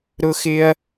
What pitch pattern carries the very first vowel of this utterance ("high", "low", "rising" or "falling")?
high